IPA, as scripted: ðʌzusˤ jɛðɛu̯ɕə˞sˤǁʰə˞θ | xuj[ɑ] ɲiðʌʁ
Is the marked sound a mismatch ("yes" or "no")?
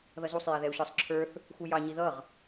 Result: no